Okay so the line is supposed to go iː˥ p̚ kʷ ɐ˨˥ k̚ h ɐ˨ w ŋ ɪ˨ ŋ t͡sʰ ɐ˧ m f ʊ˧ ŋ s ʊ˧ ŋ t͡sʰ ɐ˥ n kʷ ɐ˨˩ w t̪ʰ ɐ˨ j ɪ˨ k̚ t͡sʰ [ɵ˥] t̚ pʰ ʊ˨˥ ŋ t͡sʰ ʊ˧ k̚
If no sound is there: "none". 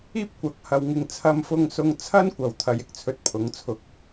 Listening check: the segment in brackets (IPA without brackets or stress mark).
ɵ˧